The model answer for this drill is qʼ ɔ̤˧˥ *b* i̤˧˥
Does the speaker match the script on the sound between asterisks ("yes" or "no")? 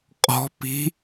no